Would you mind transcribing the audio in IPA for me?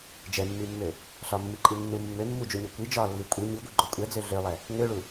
d͡ʒ ɛ mː i mː ø | ɬ ɒ mː i ǃʼ i nː u mː ø mː u d͡ʒ u ɲ o kʷ i d͡ʒ ɒ lː i kʷʼ i ɲ i ɡʷ i ɡ͡ǃ o kʷʼ ɛ d͡z ø ɮ ø lˠ ɛ | ŋ ø ɭ u

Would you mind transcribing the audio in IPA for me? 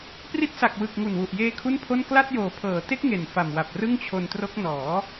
p r i˦˥ t̚ s a˨˩ k̚ w ɯ˨˩ k̚ ŋ u˨˩ n w u˨˩ ʔ j eː˧ kʰ u˥˩ n pʰ o˥˩ n k l a˥˩ t̚ j oː˨˩ pʰ ɤː˩˦ t e˦˥ k̚ ŋ e˨˩ n f a˨˩ m w a˨˩ p̚ r ɯ˥˩ ŋ t͡ɕʰ o˧ n t r o˦˥ k̚ n ɔː˩˦

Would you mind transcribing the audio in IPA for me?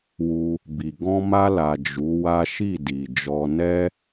w u˧ | b i˨ ɡ ɔ̃˧ m a˧ l a˨ d͡ʒ u˨˦ w a˦ ʃ i˦˨ d i˨ d͡ʒ ɔ˧ n ɛ˦

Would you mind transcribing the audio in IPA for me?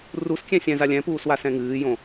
r u s kʲ ɛ̃ sʲ ɛ̃ z a lʲ ɛ̃ p uː s w a s ɛ̃ ŋ ɨː j õ

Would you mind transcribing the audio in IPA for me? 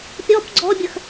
pʲ ɔ p ɡ͡ǀ ɔ bʲ ə x

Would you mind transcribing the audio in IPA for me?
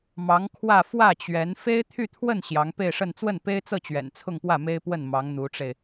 m ɑ˧˥ ŋ kʰ w ä˥˧ f w ä˥˩ t͡ɕ ɥ ɛ˧˥ n f e˥ ɪ̯ t̪ʰ y˥˧ t̪ʰ w ə˥˩ n ɕ j ɑ˧˥ ŋ p e˥˧ ɪ̯ ʂ ə˥˧ n t͡s w ə˥˩ n p e˥ ɪ̯ t͡s ɤ˥˩ t͡ɕ ɥ ɛ̰˨˩ n t͡sʰ ʊ˥˧ ŋ p w ä˥˩ m e˥ ɪ̯ p w ə˥˩ n m ɑ˧˥ ŋ n̪ u˧˥ ʈ͡ʂ e˧ ɪ̯

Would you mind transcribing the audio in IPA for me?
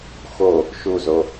x o | ʃ u z o

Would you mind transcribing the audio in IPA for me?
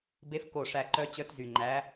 b e˧˥ f k o˧˩ ʂ æ˧˩ ǃ œ˧˥ t͡ɕ œ˧˥ t z y˧˩ ŋ͡ǃ æ˧˥

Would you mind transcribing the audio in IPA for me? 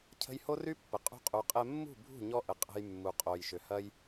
cʰ ə̤˧ j h o˦ r y˦ pː ə˨ qʼ ṳ˧ qʼ u˨ qʼ ɛ˧ mː ṳ˦˨ bʱ ṳ˦˨ ɲ ɔ˧ ʔ ə˨ qʼ ə̤˧ j mː u˨ qʼ o˨ j ʃ ʏ˨ h ɐ˧ j

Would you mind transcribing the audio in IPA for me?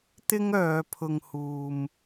t̪ ɪ˥ ŋ œː˨˧ pʰ ʊ˨ ŋ h uː˨ m

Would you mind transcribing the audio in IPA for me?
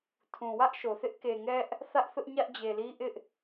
tʰ ũ˨ w ä˦ ʔ ʃ o˨ θ ɪ˦ ʔ k e˨ ŋ ɛ˦ ʔ | θ ä˦ ʔ θ ʊ˦ ʔ ɲ ä˦ ʔ d͡ʑ e˨ l i˦ ʔ ɪ˦ ʔ

